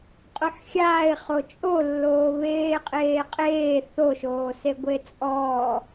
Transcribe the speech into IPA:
qʼ o ħ xʲ aː ɪ̯ χ o t͡ʃʼ o lː oː β eː qʼ eː qʼ eː θ o ʃ oː s e ɡʷ e t͡sʼ ɔː

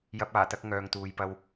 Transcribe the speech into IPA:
j ɐ˧ p̚ aː˨˩ t̪ ɐ˧ k̚ ŋ œː˨ ŋ t̪ uː˨ j p ɐ˧ w

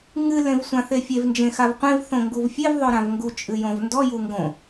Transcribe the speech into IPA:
ŋ ɨ l ẽ v sʷ ã θ e fʲ e v n d͡ʒ ẽ x a v qʷ ẽ v θ õ ŋ ɡ u v fʲ e v ðˤ o ɾ ã v ŋ ɡ u t͡ʃʼ ɨ j õ v n d ɔ j u ŋ ɡ õ

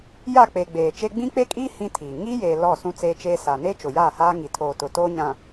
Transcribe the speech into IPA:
j a˦˨ k͡p e˨ ɡ͡b eː˨ t͡ʃ e˦ ɡ͡b ĩ˦ k͡p e˦ kʼ iː˦ h ĩ˦ tʰ iː˨ ŋ i˦ j eː˨ l ɔ˦˨ s ũ˦ t͡s e˦ t͡ʃ eː˦ s a˨ n e˦ t͡ʃ ʊ˨ j aː˦˨ h aː˦ ŋ i˨ tʰ oː˨ t ʊ˨ t oː˦ ɲ ã˨

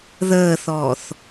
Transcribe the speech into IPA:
ð əː θ ɔː θ

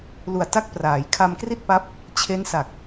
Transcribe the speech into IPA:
l u˨˩ a̯ t a˥˩ k̚ p r aː˩˦ j kʰ a˧ m k r i˥˩ t̚ p a˦˥ p̚ | t͡ɕʰ e˦˥ n s a˨˩ k̚

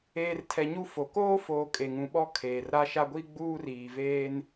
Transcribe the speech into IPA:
eː˨ r tʰ ɛ˨ ɲ u˦ f o˨ k oː˦ f oː˨ kʼ e˨ ŋ ũ˨ ɓ ɔ˦ kʰ eː˨ r ɾ a˦ ʃ a˦ ɡʷ i˦ ɡ͡b uː˦ r iː˨ v eː˦ n

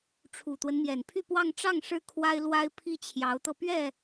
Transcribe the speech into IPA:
ʈ͡ʂʰ u˨˩ t̪ w ə˦ n m j ɛ˨˩ n pʰ y˥˧ p w ɑ˥˧ ŋ ʈ͡ʂ ɑ˥˩ ŋ ʂ ɻ̩˥ kʰ w a˥ ɪ̯ l w a˥ ɪ̯ pʰ i˥˩ t͡ɕʰ j ɑ˧˥ ʊ̯ t̪ ɤ˧ p ɥ ɛ˥˩

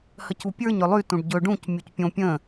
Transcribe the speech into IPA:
h ə c u pʲ ə˞ ɲ ʏ lˠ y t ũ ɖ ɟ ɵ ɖ ũ c mʲ u c pʲ õ pʲ ə̃

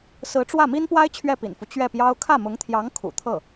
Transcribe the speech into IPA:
s ɹ̩˧˥ ʈ͡ʂ w ä˥˩ m i˥ n p w a˥ ɪ̯ t͡ɕʰ ɥ ɛ˥˩ p ḭ˨˩ n f u˦ t͡ɕ ɥ ɛ˥˩ p j ɑ˥ ʊ̯ kʰ ä˥˩ m ʊ˧˥ ŋ t̪ʰ j ɑ˧˥ ŋ kʰ ṵ˨˩ t̪ʰ ɤ˥˩

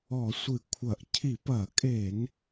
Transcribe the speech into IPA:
ɔ˧˩˧ sʷ ɨ˧˩˧ kʷʰ ɐ˧˩˧ ʔ cʰ i˧˩˧ p ɐ˧˩˧ kʼ e˧˩˧ n

